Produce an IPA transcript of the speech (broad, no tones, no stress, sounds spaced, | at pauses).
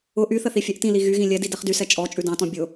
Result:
ʊ ʔ y θ ə θ i fʲ ɛ ʔ t ĩ l i ɣ y ɣ ĩ lʲ ɛ d i d ɛ χ d y s ɛ t͡ʃʼ ɔ t͡ʃʼ ʉ d ɑ̃ t ɔ̃ bʲ ʊ